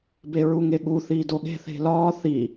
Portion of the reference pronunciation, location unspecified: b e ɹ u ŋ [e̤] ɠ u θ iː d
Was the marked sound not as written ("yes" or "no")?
yes